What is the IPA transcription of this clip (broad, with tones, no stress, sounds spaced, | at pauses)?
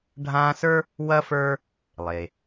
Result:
ɖʱ ãː˦ s ə˞˥ | w ɐ˥ f ə˞˥ | lˠ e˩